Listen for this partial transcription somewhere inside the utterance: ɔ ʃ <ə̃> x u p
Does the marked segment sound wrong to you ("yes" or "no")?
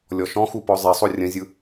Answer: yes